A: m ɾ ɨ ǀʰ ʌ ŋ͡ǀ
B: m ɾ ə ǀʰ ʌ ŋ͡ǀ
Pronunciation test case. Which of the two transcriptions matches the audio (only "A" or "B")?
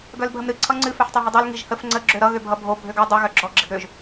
A